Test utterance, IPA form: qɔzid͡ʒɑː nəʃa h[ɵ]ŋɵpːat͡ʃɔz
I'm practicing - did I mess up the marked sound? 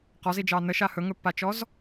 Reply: no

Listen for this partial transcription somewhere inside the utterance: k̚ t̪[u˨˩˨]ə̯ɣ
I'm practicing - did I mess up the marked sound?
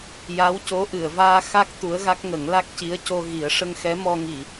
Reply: yes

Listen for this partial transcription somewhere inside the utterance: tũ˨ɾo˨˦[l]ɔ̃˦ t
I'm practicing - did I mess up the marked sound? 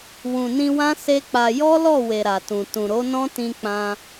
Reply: yes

